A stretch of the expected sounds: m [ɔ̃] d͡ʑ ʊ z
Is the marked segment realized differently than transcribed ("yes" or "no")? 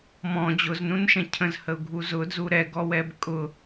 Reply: no